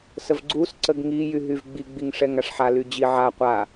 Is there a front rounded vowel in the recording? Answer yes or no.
yes